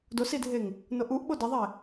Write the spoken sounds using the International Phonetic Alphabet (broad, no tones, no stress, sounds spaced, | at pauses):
d o s i dʱ e ŋ | n o ʔ u ʔ ɓ o d ɐ ðˤ e